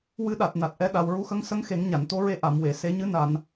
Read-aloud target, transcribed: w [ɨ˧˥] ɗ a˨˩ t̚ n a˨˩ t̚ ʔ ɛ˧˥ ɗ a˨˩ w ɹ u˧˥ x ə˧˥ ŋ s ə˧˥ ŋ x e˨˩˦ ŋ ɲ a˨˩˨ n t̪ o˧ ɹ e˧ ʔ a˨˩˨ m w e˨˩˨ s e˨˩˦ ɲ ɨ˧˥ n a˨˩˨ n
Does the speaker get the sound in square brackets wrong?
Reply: no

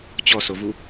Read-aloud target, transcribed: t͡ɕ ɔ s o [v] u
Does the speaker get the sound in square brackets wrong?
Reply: no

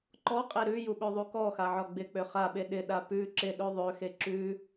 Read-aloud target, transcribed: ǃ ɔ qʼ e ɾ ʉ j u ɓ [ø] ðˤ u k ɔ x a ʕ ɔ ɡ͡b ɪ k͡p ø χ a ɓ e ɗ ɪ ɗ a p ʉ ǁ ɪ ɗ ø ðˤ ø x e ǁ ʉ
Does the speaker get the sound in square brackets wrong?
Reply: no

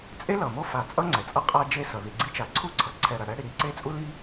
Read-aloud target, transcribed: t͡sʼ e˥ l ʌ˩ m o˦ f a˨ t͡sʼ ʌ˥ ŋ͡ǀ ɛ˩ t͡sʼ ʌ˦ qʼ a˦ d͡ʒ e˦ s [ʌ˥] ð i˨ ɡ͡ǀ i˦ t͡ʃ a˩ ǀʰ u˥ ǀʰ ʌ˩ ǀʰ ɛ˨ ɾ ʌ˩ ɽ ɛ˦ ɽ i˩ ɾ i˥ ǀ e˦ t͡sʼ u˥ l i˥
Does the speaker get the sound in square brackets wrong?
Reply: yes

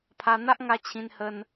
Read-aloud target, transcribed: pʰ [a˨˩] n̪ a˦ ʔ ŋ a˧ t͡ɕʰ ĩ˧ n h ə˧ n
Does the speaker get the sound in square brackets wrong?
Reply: yes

